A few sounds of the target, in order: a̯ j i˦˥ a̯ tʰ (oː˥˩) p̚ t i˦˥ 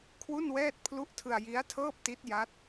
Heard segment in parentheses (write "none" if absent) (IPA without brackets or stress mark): ɤː˥˩